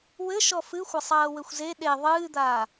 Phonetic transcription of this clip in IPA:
w ɘ ʃ ɔ f ɨ xʷ ɐ sˤ ɐː w ɘ xʷ z e ɗ e ðˤ ɨː d̪ aː

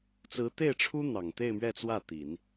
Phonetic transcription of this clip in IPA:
t͡s ɹ̩˧˥ t̪ e˥˩ ɪ̯ ʈ͡ʂʰ u˥ n̪ ɑ˨˩ ŋ t̪ e˥˧ ɪ̯ m ɥ ɛ˥˧ t͡s w ä˥˩ t̪ i˨˩˦ n

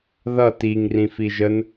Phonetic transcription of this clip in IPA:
ð ʌ t i ŋ r ĩ f i ʒ ə n

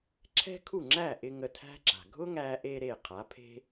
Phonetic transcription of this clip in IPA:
ǁʰ ɛ̤˥ kʰ u˥˩ ŋ͡ǁ æ˥˩ ʔ ɪ˧ ŋ ə˧ tʰ æ̤˥ ǁ a̤˩ ɡʱ ʊ˥ ŋ æ˧ ʔ e˧ ɾ e˥˩ qʰ a˩˥ pʰ e̤˥

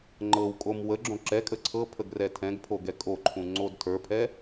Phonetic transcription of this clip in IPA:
ŋ͡ǃ ɤ w kʼ o m w ə ɡ͡ǁ õ ǁ ɛ kʼ ə ǀʰ ɤ pʰ ə ɡ r ɛ tʰ ɛ̃ ɡ pʰ o ɡ ɛ kʼ o ǃʰ ũ ŋ͡ǀ o d tʰ ə˞ pʰ ɛ

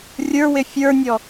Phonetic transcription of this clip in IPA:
rʲ ə˞ w ɪ fʲ ə˞ nʲ ɔ

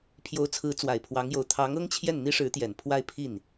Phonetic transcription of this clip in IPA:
pʰ j o˧˥ ʊ̯ t͡sʰ ɹ̩˧˥ t͡s w a˨˩ ɪ̯ pʰ w ɑ˧˥ ŋ j o˧˥ ʊ̯ t̪ʰ ɑ˧˥ ŋ ɤ˥ ŋ t͡ɕʰ j ɛ˥˩ n n̪ i˥ ʂ ɻ̩˧˥ t̪ j ɛ˨˩ n pʰ w a˥˧ ɪ̯ pʰ i˥˩ n

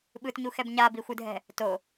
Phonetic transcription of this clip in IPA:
ɓ ɯ t ɲ u x ɛ b ɲ a b i xʷ ɯ dʱ ɛ̤ | t o

